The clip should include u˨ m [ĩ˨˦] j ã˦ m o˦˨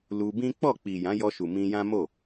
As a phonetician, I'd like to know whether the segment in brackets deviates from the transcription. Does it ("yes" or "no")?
yes